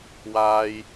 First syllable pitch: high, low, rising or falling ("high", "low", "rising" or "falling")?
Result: low